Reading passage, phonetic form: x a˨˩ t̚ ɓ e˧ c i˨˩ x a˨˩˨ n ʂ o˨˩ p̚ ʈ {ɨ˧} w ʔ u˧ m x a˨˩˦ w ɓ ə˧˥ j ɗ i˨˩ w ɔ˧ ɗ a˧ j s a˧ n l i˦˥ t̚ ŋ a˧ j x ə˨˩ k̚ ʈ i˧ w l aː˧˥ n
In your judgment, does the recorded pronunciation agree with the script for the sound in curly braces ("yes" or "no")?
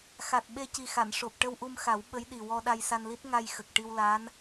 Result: no